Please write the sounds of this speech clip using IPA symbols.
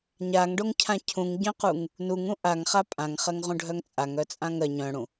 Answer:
ɲ a ŋ ɖ o ŋ cʰ ã cʰ ũ ŋ ɟ œ̃ q u ŋ | n u ŋ ũ ʔ a ŋ χ a pʼ ã ŋ χ ɜ ŋ ʁ ũ ɖʱ œ ŋ t͡sʼ a ŋ œ t͡sʼ ã ŋ ɜ ɲ œ̃ ɽ ũ

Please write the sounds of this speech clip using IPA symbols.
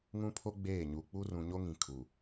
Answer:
ŋ ũ˦ pʰ o˦ ɡ͡b eː˦˨ ɲ u˨ k͡p u˦ r ũ˨ ɲ o˦ ŋ ĩ˨ kʰ u˨

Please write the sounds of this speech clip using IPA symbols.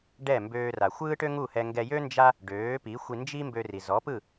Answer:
ɖ ɛ˥˩ m b øː˧ r a˩ xʷ ɯː˥ ʈ ø˥ ŋ u˥˩ h ɛ˧ ŋ ɡ ɛ˧ j ø˥ n d͡ʒ a˥ | ɖ øː˩˥ p i˩˥ xʷ i˧ n d͡ʒ i˥ m b ø˧ r i˩ z ɔ˩˥ p ɯ˥˩

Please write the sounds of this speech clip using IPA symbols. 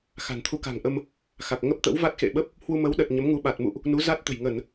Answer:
x a̤˨˩ n t̪ʰ u˧ k a̤˨˩ ŋ ʔ ə˧ m | x a˨˩ k̚ ŋ ə˦˥ p̚ t̪ ə̰˧˥ w v a˦˥ t̚ x ḛ˧˨ ɓ ə˦˥ p̚ | h w u˧ m ə˨˦ w ɗ ə˨˩ t̚ ɲ ə˨˦ m ŋ u˨˦ ɓ a˨˩ t̚ m ṵ˧˨ ʔ | n u˨˦ z a˦˥ t̚ t̪ ə̤˨˩ j ŋ ə˧˩˨ n

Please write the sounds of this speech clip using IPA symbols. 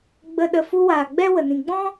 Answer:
ɡ͡b ə˨ ɗ ə˨ f u˧ w aː˨ ɡ͡b ɛ˦ w ə˨ n ĩ˨ ɡ͡b ɔ̃˦

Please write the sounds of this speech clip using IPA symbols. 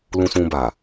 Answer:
l ũ˧ s ũ˧ b a˨

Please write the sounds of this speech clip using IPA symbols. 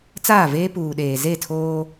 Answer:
t͡s aː˦˨ v eː˦ p uː˨ ɗ eː˨ z e˦˨ tʰ oː˦

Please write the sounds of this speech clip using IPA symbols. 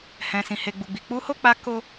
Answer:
h ɛ̃˨ s ĩ˨ h e˨ ɡ͡b u˨ ɡ͡b i˨ k͡p u˧ h o˦ k͡p a˧ k o˦

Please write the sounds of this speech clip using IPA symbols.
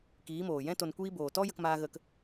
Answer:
k iː˨˦ m oː˨ j ɛ̃˦ t o˧ n kʷ iː˦ b oː˨ t ɔ˦ j ə˧ k m aː˧ ɣ ə˧ k

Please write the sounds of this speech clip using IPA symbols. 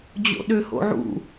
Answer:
d͡ʑ o̰ ɗ ø h o̰ ʕ ṵ

